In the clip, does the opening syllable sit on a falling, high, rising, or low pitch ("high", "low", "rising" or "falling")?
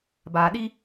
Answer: low